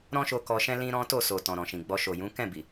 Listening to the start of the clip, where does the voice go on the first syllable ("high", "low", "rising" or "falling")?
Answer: high